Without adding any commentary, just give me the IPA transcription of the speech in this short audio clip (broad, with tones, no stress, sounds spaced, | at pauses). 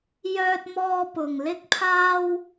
j œː˥ t̚ m ɔː˥ p ʊ˨ ŋ l ɪ˥ k̚ pʰ aː˥ w